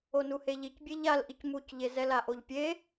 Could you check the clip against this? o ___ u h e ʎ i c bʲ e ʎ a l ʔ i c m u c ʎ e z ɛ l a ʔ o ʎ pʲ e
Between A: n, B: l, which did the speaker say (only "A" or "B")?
A